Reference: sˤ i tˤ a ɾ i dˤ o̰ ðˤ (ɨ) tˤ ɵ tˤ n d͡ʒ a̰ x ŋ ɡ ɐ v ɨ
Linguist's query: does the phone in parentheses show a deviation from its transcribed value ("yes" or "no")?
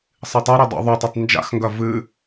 yes